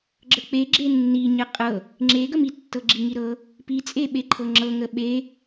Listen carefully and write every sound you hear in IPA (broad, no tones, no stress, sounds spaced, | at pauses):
ɡ͡ǁ ə k͡p e ɡ͡ǁ e nː i ɲ ə qʼ ɤ | ŋ͡ǁ e ɡ ə m i tː ɤ ɡ͡ǁ i ŋ i ɾ ɤ | p i t͡sʼ e ɓ e ǃʰ ɤ ŋ͡ǁ ɤ ŋ ə ɓ e